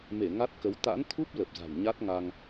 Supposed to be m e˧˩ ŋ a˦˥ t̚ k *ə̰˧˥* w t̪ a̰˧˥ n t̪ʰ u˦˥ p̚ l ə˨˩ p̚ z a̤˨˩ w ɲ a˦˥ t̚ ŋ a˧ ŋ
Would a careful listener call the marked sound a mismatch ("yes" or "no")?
yes